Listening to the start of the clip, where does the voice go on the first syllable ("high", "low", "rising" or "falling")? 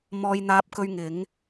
high